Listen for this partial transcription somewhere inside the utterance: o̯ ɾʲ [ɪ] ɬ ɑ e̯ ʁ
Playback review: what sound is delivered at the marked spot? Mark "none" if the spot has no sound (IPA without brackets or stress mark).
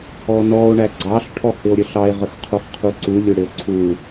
ə